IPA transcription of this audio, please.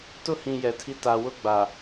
t ʊ˦ h ĩ˨ j ɛ˨ tʰ i˦ t a˨ w ʊ˦ ɡ͡b a˨

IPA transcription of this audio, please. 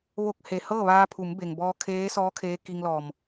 ʋ o˧ k̚ h e˩ h ɤː˥˨ ʋ aː˧ pʰ u˩˧ m b e˩ ŋ b ɔː˧ kʰ eː˧˥ s ɔː˧˥ kʰ eː˧˥ k i˧ ŋ l ɔː˧˩ m

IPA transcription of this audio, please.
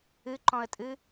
ɨ ǃ ɔ̃ ə̯ tʼ ɨ

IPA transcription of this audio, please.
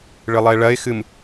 ɭ ɨ lˠ e ɭ ɐ ɪ̯ x ɨ m

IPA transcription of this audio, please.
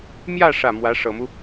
m j ä˥˧ ʂ ä˥˩ m w ä˧˥ ʂ ɤ˨˩ m u˦

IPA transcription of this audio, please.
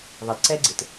ðˤ ə d ǀ ɛ ɡ͡ǀ ɪ t

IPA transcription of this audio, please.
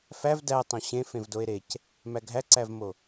f æ v d æ tˤ õ ɕ ẽ f ẽ v d o e̯ ɾ e c | m æ ɡʱ æ ǀ æ v m o

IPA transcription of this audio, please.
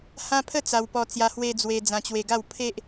h ã˦ pʰ ə˥˧ t͡s a˧ w p ɔ˧ t͡s j a˧ h w e˧ d͡z w e˧ d͡z ã˧ t͡ɕ w e˧ ɡ a˥˧ w pʰ e˦ ʔ

